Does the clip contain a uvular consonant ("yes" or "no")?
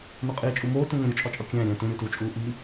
yes